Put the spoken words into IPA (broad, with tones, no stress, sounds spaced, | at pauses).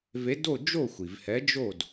v e˨˥ d o˥˨ d͡ʒ o˥˨ xʷ i˩ v h ɛ˨˥ d͡ʒ o˥˨ d